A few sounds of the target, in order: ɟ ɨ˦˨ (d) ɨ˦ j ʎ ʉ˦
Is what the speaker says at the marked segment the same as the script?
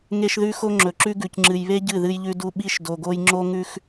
no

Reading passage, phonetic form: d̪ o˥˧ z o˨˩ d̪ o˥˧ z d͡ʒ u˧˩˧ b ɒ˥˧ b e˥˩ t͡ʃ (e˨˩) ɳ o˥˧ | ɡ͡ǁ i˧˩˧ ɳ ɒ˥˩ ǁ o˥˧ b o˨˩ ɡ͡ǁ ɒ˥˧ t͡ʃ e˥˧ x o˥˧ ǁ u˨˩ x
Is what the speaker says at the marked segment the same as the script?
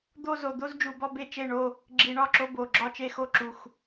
no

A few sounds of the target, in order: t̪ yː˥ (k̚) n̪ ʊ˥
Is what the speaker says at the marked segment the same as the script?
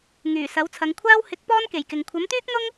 yes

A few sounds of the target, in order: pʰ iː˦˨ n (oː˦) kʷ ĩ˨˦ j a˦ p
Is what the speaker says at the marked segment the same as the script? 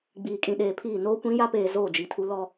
yes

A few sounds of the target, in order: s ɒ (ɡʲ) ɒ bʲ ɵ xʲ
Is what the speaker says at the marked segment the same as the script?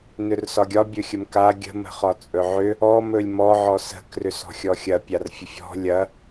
yes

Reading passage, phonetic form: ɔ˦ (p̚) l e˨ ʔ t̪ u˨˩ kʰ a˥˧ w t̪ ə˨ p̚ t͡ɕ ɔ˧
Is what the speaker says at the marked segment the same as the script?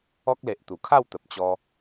no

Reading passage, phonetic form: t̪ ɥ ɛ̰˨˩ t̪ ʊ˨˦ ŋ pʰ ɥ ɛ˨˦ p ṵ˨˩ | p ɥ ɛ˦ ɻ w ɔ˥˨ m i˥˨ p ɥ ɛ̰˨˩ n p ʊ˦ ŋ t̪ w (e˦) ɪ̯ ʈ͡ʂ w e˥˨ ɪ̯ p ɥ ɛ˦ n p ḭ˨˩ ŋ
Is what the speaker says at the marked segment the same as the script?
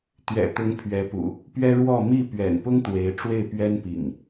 no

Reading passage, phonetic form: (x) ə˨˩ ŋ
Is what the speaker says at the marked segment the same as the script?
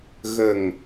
no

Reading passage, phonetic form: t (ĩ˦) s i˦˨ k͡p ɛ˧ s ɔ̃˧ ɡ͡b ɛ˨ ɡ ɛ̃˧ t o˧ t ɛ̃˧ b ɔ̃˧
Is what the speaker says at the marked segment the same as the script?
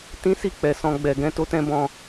yes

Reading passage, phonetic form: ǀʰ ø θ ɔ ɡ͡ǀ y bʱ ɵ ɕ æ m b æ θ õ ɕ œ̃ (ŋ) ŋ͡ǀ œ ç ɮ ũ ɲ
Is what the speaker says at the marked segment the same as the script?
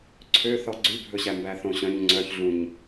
no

